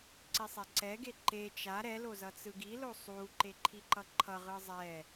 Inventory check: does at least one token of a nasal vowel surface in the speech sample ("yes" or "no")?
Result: no